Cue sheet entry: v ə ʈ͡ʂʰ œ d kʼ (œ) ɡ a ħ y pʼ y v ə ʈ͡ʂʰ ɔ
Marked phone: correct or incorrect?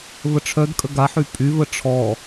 incorrect: ə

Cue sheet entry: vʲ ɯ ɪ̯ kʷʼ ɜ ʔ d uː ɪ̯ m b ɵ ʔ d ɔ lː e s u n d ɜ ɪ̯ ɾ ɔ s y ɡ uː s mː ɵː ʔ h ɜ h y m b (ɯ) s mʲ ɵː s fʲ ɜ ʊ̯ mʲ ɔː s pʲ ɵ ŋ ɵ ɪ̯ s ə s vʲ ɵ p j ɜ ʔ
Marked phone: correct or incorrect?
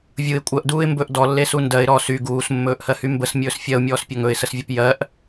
incorrect: ə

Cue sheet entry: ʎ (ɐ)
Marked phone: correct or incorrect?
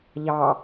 incorrect: ɑ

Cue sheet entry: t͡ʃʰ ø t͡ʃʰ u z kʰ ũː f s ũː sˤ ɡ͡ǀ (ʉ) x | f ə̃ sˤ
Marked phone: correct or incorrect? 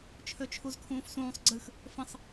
incorrect: ɨ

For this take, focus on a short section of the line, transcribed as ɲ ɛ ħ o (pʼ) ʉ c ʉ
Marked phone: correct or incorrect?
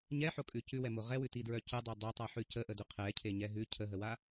incorrect: kʼ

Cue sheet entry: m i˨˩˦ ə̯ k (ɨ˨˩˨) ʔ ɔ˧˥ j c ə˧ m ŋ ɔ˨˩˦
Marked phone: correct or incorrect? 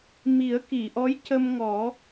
incorrect: i˨˩˨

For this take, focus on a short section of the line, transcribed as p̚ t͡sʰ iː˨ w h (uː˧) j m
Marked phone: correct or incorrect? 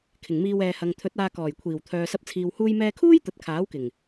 correct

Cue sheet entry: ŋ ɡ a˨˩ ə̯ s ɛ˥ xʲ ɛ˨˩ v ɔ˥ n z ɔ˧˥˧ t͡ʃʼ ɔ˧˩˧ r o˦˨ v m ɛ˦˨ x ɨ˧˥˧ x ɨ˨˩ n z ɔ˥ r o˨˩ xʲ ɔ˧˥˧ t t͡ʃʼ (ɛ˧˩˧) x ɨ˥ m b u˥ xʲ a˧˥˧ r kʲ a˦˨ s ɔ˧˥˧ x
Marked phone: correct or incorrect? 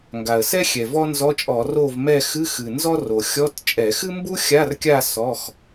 correct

